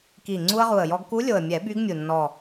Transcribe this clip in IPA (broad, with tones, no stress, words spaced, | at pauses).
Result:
ki˨˩ŋ͡ǀu˧ə̯ʁu˨˩ə̯jɔ˧ɡ ku˧˥lʲo˨˩ə̯mʲɛ˨˩˦ by˧˥ɡmʲu˨˩ nːɔ˨˩